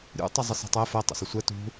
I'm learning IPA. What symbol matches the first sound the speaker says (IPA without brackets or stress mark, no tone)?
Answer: ɾʲ